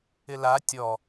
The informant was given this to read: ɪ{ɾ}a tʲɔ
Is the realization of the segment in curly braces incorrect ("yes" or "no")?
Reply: yes